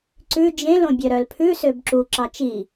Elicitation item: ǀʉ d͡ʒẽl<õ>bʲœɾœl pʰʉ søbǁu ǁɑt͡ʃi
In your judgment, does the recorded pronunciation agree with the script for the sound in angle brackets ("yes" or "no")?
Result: yes